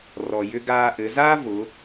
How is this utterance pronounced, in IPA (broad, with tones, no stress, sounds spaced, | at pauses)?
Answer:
r ɔ˩ j ʏ˧ ɡ aː˧ ʔ ɘ˩˧ z aː˥ v ʊ˩˧